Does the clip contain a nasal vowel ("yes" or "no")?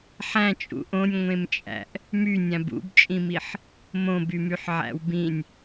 yes